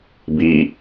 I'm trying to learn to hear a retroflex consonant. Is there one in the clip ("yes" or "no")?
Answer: no